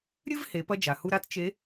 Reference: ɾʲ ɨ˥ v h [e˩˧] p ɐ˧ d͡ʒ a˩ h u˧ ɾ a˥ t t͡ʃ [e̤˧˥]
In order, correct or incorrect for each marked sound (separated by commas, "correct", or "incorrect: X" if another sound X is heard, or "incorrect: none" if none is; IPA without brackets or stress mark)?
correct, incorrect: e˧˥